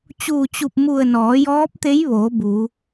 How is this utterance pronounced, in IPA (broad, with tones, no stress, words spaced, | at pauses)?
t͡ɕuː˧˩t͡ɕu˧˩p̚mu˧˩ə̯ nɔː˩˧jɔː˧˥p̚t̪e˧˥jʋoː˩˧ bu˩˧